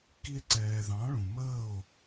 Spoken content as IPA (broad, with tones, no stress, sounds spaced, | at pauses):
k i˧ e̯ ǀ ɛː˨ ð ɑ̃˨˦ ɭ ũ˨ m əː˦˨ o̯